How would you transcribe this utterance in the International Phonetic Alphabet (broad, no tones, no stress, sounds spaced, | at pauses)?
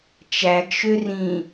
t͡ʃ æ ɡ ʃ ø r ĩ